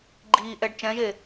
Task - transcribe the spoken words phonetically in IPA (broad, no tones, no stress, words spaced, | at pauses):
ɡ͡ǃiːʔɛɖ t͡ʃɛ̃ʒe